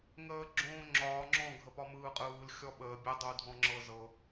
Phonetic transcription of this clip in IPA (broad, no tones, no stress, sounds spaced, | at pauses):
ŋ əː ɡ͡ǁ õː ŋ͡ǁ ɒː ŋ͡ǁ ɔ̃ ɡʱ ə p ɒ m ɯː qʼ ɯː l xʲ ɔ ɓ əː bʲ ə dˤ u dʱ ɔ̃ ŋ͡ǁ ɤ z ɤ